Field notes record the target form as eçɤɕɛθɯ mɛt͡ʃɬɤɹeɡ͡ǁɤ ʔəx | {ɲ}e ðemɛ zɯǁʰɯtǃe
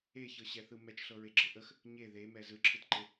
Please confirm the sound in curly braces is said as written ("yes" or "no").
yes